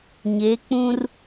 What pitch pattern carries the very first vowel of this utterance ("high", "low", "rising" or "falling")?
rising